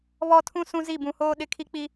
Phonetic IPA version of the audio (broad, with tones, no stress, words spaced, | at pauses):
βɔ˦tʰũ˦ sũ˦zi˦˨bũ˨hoː˦ ɗɪ˦˨kʰi˦k͡pi˦